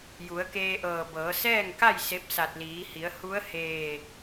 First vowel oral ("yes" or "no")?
yes